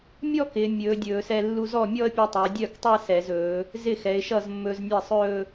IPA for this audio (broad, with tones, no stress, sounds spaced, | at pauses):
mʲ ɔ˥˧ k ɪː˩˧ mʲ ɵː˩˧ dʲ ɵː˧˩˧ s ɛ˧ lː u˧ z ɔ˥˩ mʲ ɔ˥˧ ə̯ pʲ œ˧ tˤ ɪː˩˧ dʲ œ˥˩ k tˤ ɛ˥˧ s ɛ˧˩˧ z ɵː˩˧ | z ɪ˥˩ x ɛ˩˧ ɪ̯ ʃ ʌ˥˩ z mː ɵː˧ z nʲ ɛ˥˩ sˤ ɵː˥˧